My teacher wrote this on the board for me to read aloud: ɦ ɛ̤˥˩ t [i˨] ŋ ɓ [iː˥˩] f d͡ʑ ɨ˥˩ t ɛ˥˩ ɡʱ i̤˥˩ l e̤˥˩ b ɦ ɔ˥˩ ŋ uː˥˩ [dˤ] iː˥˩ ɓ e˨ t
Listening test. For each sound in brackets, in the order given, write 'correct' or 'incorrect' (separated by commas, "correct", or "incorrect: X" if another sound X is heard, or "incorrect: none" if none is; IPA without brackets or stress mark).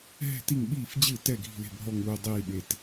incorrect: i˥˩, correct, correct